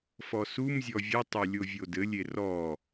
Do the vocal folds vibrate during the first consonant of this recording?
no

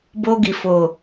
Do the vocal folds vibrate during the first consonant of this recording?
yes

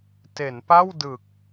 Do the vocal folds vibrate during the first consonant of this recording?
no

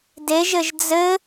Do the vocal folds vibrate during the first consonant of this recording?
yes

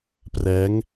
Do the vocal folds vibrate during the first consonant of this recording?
no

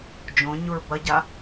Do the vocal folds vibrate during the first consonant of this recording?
yes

